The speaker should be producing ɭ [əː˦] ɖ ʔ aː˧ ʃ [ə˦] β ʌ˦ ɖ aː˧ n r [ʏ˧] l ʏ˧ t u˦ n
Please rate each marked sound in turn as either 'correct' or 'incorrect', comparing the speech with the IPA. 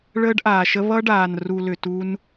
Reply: correct, correct, incorrect

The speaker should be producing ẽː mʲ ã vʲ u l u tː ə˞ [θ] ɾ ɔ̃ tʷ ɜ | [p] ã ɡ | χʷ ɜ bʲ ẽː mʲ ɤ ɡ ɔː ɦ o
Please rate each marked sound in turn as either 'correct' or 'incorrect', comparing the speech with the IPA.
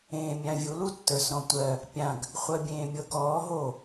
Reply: incorrect, incorrect

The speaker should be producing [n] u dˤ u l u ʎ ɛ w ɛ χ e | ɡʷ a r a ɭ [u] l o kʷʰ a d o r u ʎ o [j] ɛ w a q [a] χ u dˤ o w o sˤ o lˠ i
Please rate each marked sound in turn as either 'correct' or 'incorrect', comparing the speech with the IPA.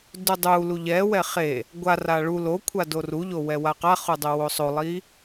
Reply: incorrect, correct, incorrect, correct

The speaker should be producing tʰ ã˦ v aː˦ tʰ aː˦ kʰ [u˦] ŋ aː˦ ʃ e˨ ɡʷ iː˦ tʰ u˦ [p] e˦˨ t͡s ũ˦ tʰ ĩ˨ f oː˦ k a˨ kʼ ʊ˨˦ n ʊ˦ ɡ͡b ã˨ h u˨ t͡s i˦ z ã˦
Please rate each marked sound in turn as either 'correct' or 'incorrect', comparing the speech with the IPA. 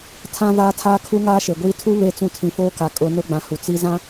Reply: correct, incorrect

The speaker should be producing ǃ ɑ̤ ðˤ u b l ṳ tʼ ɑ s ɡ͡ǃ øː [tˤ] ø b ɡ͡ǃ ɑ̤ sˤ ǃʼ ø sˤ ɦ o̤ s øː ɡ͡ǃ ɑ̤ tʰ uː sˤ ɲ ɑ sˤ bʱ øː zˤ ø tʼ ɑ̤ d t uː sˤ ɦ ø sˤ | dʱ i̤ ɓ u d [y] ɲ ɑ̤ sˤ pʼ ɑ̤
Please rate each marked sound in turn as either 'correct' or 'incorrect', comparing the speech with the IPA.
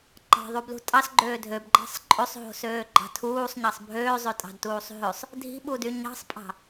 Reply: incorrect, correct

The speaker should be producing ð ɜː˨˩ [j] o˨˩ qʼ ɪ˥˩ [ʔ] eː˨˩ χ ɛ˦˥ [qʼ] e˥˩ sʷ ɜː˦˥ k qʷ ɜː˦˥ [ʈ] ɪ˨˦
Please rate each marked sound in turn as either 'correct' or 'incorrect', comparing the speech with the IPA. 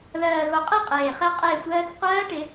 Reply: incorrect, incorrect, correct, correct

